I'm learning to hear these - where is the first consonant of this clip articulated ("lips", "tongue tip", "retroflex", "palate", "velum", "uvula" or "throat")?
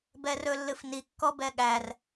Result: lips